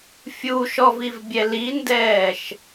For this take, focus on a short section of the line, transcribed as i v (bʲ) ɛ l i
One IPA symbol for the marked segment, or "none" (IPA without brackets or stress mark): bʲ